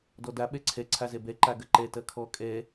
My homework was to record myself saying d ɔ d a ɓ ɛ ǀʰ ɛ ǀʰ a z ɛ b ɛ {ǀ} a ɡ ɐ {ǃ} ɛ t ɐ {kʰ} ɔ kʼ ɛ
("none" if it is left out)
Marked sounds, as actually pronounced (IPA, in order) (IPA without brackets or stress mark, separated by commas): ǃ, ǃ, kʰ